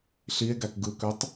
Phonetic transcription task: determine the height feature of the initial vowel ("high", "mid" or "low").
high